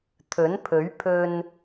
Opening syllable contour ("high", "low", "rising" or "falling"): rising